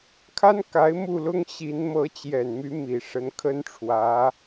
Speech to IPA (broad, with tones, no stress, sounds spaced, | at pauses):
kʰ a˥ n k a˧˥ ɪ̯ m u˥˩ l ʊ˥ ŋ ɕ i˧˥ n m ɤ˧˥ t͡ɕ j ɛ˨˩ n m y˧˥ m i˨˩ ʂ ə˧˥ n kʰ ə˥ n ʈ͡ʂʰ w ä˧˥